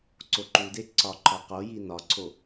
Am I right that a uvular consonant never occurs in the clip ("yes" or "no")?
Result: no